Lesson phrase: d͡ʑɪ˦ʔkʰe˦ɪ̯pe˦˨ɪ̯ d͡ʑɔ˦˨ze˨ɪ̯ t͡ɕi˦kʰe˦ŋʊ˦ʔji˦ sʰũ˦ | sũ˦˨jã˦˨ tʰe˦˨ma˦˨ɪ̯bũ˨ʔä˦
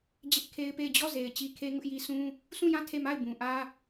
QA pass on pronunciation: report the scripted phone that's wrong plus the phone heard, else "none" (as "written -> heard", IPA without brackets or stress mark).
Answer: none